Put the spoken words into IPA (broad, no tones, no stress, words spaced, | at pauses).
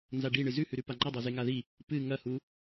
nzaɖiɳɨ zʉhʉɾʉ paŋ͡ǃadˤo zeŋaði | pɨ ŋɐhu